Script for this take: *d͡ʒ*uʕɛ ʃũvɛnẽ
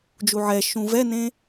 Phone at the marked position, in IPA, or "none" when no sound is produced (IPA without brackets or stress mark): d͡ʒ